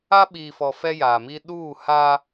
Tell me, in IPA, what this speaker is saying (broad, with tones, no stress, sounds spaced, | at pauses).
a˦ ɓ iː˨ f ɔ˨ f ɛ˦ j a˨ m i˦ ɗ uː˦˨ h a˦